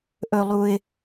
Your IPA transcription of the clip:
ʔ ɵ˧ lˠ u˧ ɪ̯

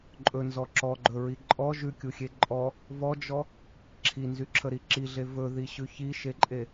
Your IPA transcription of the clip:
ǃʼ ɵ n z ɔ ǁ ɔ ɡ͡ǃ ɵ ɹ i ǃʼ ɔ ʒ ʉ kʲ u xʲ e ǃʼ ɔ | v ɔ d͡ʒ ɔ | ǁʰ i n z y ǁʰ ə ɾ i ǁ i ɮ e v ɵ ð i ɕ ʉ ç i ʃ e ǃʼ e

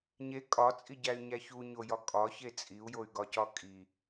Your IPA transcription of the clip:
ɲ e kʼ ɒ t͡sʼ i ɟ æ y̯ ɲ æ ç u ɲ o j ɒ kʼ ɒ ç e t͡sʼ i u̯ j o y̯ ɡ ɒ c ɒ kʼ i

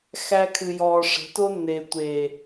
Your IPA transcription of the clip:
x æ˨ kʰ ɨ˨ j ɔː˨ ʂ ə̤˨˦ t o˦ nː e˨ tʷ e˨

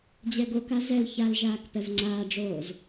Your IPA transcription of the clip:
d͡ʑ ɛ ɡ o k a z ɛ l ç a l ʒ aː k p ɛ v ŋ͡ǀ aː ɖ͡ʐ oː z

